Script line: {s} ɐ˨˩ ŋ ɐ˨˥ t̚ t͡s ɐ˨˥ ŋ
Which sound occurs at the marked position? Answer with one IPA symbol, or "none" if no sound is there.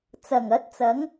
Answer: t͡s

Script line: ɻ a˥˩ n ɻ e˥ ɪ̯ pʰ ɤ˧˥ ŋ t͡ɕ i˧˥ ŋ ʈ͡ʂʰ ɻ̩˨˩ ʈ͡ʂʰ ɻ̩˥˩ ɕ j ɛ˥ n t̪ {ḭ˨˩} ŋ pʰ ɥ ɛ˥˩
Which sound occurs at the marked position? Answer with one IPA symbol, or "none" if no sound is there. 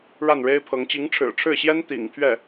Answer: ḭ˨˩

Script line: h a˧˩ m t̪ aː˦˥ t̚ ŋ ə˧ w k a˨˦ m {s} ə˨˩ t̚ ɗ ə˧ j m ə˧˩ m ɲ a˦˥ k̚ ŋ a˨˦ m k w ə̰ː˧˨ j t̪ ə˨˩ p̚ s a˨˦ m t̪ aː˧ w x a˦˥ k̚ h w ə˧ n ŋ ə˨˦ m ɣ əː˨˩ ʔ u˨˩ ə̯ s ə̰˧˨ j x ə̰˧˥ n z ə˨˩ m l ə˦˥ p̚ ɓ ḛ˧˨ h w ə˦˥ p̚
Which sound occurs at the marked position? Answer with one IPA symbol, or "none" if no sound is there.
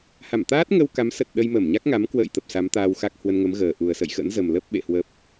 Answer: s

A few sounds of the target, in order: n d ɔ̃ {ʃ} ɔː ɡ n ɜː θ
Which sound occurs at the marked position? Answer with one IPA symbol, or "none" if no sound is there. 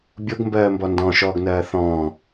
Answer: ʃ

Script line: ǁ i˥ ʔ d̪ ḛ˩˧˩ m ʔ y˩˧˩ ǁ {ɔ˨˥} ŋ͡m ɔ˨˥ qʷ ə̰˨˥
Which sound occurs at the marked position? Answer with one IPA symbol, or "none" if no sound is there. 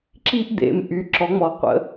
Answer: ɔ˨˥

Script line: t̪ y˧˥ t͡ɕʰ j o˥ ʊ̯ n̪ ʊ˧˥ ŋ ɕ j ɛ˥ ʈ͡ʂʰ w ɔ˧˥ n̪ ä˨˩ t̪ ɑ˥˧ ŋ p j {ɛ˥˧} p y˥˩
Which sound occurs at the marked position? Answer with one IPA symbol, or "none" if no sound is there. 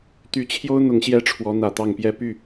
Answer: ɛ˥˧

